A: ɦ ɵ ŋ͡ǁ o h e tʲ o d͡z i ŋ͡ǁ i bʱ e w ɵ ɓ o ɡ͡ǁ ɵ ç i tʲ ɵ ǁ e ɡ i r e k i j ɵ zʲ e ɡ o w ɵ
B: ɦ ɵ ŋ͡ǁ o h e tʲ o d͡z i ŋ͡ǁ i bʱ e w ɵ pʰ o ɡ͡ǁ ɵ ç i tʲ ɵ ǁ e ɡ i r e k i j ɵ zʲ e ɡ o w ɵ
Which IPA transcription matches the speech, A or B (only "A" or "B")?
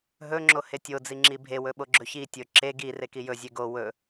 A